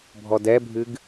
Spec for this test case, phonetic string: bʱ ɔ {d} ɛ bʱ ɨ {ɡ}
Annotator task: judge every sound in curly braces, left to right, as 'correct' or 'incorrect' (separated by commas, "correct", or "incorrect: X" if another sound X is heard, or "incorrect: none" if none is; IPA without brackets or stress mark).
correct, correct